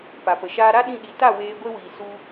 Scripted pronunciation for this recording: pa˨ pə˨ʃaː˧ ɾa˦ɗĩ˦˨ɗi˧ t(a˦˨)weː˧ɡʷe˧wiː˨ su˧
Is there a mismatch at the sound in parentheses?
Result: no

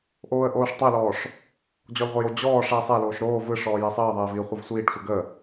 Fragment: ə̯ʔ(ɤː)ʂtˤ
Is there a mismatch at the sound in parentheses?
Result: yes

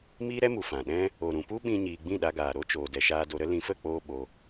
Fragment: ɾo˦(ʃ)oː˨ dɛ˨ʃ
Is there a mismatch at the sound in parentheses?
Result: yes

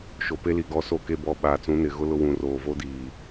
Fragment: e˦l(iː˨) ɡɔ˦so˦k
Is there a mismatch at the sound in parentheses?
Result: yes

